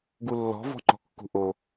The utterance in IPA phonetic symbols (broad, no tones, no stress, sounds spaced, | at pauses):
ɡ u lː ɔ̤ v ɔ̤ ŋ͡ǃ ɔ̤ kː ṳ ʔ o